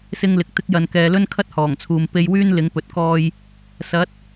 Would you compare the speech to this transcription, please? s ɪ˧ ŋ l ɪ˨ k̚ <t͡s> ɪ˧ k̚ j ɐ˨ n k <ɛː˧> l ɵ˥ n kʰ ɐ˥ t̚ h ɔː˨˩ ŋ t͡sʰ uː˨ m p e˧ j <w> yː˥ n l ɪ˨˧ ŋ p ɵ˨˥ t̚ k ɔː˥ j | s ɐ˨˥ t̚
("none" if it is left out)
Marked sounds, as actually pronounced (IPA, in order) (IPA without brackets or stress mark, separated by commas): t̪, ɛː˨, w